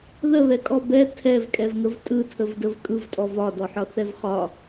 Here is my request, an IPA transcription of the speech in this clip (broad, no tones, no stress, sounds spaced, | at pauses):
ð ə β ɛ kʼ ɔ b ɛ tʰ ɛ v kʼ ɛ v ŋ ə v tʼ ɯ tʰ ə v d ə v kʼ ɯ v tʼ ɔ v ɒ d ɔ ħ ɒ θ ɛ v χ ɒ